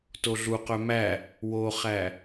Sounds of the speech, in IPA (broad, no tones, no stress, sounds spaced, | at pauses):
t o ɮ u q œ m æ | w o χ æ